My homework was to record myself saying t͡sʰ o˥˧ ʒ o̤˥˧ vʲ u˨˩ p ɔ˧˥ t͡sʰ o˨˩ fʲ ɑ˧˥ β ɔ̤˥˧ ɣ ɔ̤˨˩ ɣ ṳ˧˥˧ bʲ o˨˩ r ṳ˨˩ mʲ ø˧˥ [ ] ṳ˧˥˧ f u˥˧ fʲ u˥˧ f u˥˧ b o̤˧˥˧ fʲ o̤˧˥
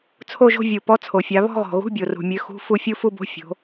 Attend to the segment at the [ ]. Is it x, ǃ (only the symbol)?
x